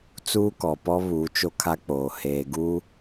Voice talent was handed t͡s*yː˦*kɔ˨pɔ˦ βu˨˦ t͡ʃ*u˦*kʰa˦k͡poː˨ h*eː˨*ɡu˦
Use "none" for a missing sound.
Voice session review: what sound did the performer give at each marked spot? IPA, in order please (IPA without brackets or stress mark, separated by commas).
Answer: uː˦, o˦, eː˨